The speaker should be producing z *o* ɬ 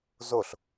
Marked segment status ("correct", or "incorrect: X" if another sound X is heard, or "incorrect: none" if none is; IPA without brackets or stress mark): correct